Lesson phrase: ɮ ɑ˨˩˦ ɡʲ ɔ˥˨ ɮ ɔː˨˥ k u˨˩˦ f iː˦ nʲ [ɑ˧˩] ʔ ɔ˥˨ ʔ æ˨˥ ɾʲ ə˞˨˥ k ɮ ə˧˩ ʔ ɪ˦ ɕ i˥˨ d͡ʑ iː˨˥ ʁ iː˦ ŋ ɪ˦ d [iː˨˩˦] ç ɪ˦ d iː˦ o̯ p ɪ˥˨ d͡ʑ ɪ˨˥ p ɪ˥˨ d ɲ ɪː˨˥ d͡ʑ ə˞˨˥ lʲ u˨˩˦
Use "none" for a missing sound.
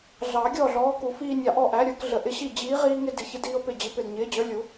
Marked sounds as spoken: ɑ˧˩, i˨˩˦

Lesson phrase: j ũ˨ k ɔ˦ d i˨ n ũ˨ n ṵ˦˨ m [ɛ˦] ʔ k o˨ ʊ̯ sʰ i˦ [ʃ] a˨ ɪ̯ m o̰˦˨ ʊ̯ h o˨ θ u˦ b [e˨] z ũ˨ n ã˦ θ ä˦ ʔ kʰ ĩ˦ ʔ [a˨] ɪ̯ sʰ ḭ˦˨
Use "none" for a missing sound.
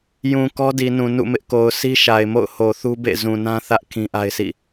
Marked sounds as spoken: ɪ˦, ʃ, ḛ˦˨, a˦

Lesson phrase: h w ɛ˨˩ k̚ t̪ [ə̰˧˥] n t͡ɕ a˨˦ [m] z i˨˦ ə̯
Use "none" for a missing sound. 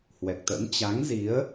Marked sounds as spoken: ə̰˧˥, ŋ

